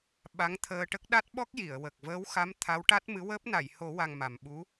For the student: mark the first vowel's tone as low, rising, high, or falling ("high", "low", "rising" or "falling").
rising